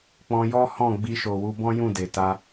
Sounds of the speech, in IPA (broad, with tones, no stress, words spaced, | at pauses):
k͡pɔ̃˧jɔ˦hɔ̃˦˨ ɡ͡bi˧ʃo˨ wu˧bɔ̃˦jũ˦˨ de˨ta˧